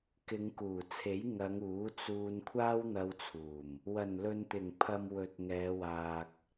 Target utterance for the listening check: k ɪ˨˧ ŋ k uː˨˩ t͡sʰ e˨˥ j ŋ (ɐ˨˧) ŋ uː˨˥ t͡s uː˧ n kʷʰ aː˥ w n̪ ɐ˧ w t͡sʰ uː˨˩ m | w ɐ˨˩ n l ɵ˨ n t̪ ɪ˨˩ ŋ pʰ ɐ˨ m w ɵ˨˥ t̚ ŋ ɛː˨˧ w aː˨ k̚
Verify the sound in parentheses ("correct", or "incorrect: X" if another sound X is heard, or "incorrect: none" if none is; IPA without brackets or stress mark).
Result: correct